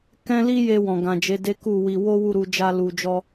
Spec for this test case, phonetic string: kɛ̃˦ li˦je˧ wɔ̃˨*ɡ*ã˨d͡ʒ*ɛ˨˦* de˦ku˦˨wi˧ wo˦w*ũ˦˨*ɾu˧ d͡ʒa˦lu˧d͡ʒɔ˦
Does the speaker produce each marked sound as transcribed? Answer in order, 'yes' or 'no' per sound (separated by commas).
yes, no, no